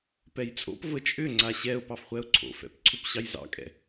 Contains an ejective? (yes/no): yes